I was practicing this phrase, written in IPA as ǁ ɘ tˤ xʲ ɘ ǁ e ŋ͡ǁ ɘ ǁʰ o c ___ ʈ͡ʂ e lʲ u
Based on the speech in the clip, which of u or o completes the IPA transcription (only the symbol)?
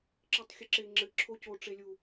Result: o